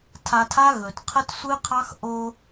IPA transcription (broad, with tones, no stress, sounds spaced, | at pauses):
tʰ a˧ tʰ a˦ ɣ ɵ˨ t qʰ ə˦ t sʷ ɨ˦ qʰ ɑ˦ x ʔ o˧